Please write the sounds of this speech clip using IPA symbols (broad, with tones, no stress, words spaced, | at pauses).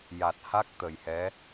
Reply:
ja˨˩t̚ha˦˥k̚ t̪ə˨˩jhɛ˧˥